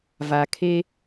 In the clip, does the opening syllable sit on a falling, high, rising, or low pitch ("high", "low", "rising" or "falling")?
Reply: low